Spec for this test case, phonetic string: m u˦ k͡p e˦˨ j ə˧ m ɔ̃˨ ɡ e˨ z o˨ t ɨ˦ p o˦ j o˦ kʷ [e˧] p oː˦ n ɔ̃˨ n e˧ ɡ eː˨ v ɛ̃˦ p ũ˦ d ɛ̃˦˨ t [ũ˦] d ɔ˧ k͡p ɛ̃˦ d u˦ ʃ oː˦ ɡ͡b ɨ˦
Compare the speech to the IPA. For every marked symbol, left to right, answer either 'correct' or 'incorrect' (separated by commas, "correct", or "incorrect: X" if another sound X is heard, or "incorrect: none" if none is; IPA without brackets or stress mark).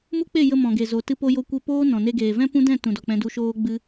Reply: incorrect: e˦, incorrect: ũ˨